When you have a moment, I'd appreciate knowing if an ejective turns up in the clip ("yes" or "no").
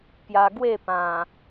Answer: no